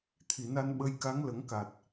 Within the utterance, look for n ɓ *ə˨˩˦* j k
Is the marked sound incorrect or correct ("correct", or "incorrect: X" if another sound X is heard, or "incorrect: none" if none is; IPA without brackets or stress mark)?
incorrect: ə˧